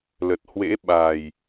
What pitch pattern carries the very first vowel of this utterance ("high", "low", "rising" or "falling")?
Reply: low